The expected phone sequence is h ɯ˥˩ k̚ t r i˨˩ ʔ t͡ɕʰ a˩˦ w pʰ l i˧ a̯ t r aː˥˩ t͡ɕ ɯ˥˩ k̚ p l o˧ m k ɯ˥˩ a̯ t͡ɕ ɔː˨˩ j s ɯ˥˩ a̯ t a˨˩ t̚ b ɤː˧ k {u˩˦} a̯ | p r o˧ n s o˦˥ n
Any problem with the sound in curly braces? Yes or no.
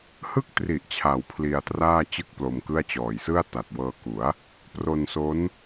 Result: no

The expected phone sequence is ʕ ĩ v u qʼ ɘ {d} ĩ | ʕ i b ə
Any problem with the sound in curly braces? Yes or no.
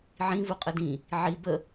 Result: no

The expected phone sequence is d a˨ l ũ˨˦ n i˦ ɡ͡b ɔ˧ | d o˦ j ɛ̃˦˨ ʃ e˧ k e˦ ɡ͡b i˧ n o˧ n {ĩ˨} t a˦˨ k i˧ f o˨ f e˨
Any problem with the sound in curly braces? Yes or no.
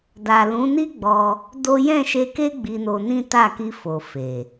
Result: yes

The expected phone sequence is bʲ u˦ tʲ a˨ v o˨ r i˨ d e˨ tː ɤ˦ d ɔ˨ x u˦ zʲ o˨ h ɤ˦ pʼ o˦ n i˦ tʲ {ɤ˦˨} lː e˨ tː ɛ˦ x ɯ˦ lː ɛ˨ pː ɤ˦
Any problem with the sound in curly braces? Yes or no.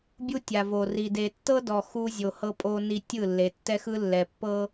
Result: yes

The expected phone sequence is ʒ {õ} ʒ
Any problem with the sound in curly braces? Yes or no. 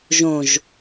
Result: no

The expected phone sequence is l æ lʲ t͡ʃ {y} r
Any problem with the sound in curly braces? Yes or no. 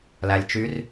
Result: no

